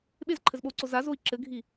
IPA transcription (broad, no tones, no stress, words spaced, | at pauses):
ɓezǃʰɘzɓou̯ǀo zazoi̯ ǁɘɡʱi